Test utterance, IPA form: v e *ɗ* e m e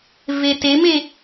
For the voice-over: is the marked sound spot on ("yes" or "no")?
no